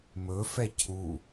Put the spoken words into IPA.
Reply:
m ɵ f ɛ cʰ u

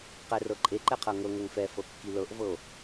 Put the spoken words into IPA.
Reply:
q ɛ r ɤ ǃʼ e ǃ ɛ qʰ ɤ ŋ ɤ ŋ ɤ ŋ f ɛ f ɤ kː i l ɤ ʔ v ɤ o̯

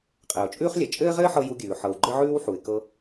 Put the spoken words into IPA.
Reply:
qʼ ɘː˩ ʊ̯ t͡ʃʼ ʉː˥ χ lʲ ɘ˩ t͡ʃʼ ɘː˥ ʁ ɘː˥ ħ ɤ˧ j u˧ ɡʲ ʉː˩ ħ ɤ˩ w ɡ͡ǃ ɘ˥ ʕ ʉː˥ w ħ u˩ ɪ̯ k ɤ˧

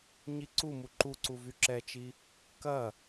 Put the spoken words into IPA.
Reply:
ɲ i ǀ u m u ǃ u ǀ u v y ǁ ɛ t͡ʃ i | k ɐ

